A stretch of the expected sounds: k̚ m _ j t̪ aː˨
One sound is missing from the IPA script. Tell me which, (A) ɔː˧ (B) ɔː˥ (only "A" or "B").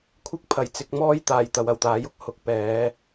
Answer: B